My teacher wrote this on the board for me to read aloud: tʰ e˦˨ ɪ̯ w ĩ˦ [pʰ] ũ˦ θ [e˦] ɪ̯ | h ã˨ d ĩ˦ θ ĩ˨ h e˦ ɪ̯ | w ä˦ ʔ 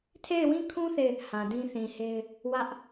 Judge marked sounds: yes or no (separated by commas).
no, no